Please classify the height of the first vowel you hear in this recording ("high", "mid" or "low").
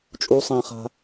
high